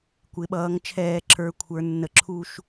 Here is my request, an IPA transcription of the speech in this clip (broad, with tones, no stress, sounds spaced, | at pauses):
kʷ ɪ˩˧ ɓ ʌː˩˧ ŋ t͡ʃʰ ɛː˧˩˧ ǁʰ ə˞˩˧ kʷʰ ə˞˩˧ nː ə˩˥ ǁʰ u˥˨ ʃ